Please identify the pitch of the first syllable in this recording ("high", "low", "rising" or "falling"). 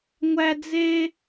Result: high